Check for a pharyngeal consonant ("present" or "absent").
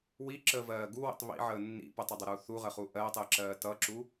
present